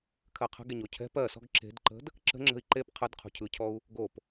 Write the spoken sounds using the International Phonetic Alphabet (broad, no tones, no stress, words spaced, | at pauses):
kʰɜqʰə̤ɡe ɲocʰɛ̤p ɜ sɔ̤ɡǁe̤dǃə̤d | ǁə̤ŋ͡ǁə̤i̯ ǃep qʰəd qʰo̤cʰɯcʰɔu̯ | ɡop